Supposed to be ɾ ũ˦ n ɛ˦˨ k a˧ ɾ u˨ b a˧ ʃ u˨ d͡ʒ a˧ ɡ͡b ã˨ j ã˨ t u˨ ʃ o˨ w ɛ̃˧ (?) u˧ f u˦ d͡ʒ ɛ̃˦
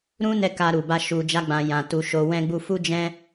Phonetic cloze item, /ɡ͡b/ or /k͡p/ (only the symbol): ɡ͡b